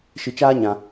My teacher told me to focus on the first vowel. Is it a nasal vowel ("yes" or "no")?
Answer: no